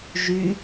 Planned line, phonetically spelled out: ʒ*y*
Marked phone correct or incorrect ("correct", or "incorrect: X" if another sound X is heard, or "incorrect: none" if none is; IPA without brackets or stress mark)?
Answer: correct